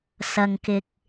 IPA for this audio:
s ɐ˧ ŋ k ɪ˧ k̚

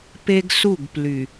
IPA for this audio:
p e˦ ɡ s u˦˨ ɡ p l y˨

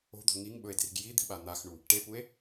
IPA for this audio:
o̤ d̪ o̤ ŋ i ŋ ɓ ɵ e̯ d r i̤ ɡ j i d̪ i̤ ɓ a n̪ a x ɳ u | ʈ e p u e̯

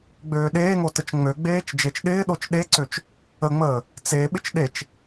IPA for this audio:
ɡ͡b øː ɗ eː ŋ o t ə t͡ʃ ŋ͡m ø ɡ͡b eː t͡ʃ d͡ʒ e t͡ʃ ɗ ɪː ɗ o t͡ʃ ɗ e ǀ ø t͡ʃ | ə ŋ͡m əː | t͡s e ɓ ɪ t͡ʃ ɗ e t͡ʃ

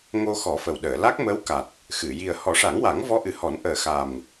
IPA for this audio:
ŋ o˧ x ɔ˨˩˦ f ə˨˩ w ɗ əː˨˩˨ l a˦˥ k̚ m əː˧˥ w k a˨˩ t̚ | x ɨ˨˩˨ j i˨˩ ə̯ h ɔ˨˩˦ ʂ a˨˩˦ ŋ w a˨˩˦ ŋ v ɔ˧˥ ʔ ɨ˨˩ h ɔ˨˩˦ n ʔ əː˨˩ x a˨˩ m

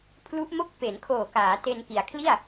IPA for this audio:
pʰ l u˦˥ ʔ m o˥˩ k̚ p e˩˦ n kʰ oː˨˩ k aː˩˦ t e˧ n k i˩˦ a̯ kʰ l i˥˩ a̯

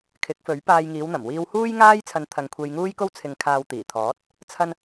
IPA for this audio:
kʰ ɪ˨˥ k̚ f ɵ˨˥ ɥ p aː˧ j ŋ iː˨˧ w n̪ ɐ˨˩ m w iː˧ w h uː˥ j ŋ aː˥ j t͡sʰ ɐ˧ n t̪ʰ ɐ˧ ŋ kʷʰ e˧ j ŋ uː˥ j k o˥ w t͡sʰ ɪ˨ ŋ kʰ aː˨ w t̪ iː˨˩ t̪ʰ ɔː˨˥ t̚ | t͡sʰ ɐ˧ n

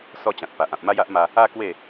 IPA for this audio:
s ɔ˥˧ t͡ɕ ã˨ t̚ p a˨ ʔ ã˨ p̚ m a˦ j a˦ ʔ m a˧ | a˦ k w e˥˧

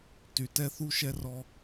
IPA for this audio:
t y˨ t ɛ˦ θ u˦ ʃ ɛ˦ r ɔ˦

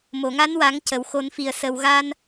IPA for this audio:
m o˨˩˨ ŋ a˧˥ n w a˨˩˦ ŋ c ə˨˩˨ w x o˨˩˦ n f i˨˩ ə̯ s ə˨˩ w ɣ a˧ n

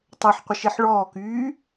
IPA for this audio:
tˤ ɛ ħ qʷ ə ʃ e ħ ɭ ɔː k yː

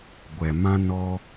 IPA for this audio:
ɡʷ ɛ˨ m ã˦ n ɔ˦

